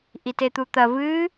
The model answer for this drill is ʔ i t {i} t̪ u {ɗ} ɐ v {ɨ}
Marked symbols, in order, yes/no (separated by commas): no, no, no